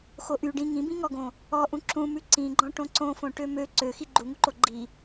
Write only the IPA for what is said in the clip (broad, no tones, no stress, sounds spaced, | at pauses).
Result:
x o ʔ y ɖ ĩ ŋ ĩ b ĩ ŋ ɔ ɡ õ | ɔ ʔ ũ ǁ ũ m ʉ ǀ ĩ ɡ͡ǃ ɔ̃ ʈ õ ǀ õ f õ ʈ ø m ø ǀ ø x i ɡ͡ǃ u ŋ u ǃ o ɡ͡ǃ i